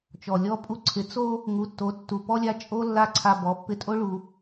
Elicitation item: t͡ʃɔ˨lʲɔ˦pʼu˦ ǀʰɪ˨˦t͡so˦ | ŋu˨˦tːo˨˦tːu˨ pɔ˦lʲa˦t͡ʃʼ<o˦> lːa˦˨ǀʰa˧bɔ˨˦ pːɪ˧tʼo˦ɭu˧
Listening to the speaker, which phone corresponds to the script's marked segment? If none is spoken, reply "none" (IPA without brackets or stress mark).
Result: o˦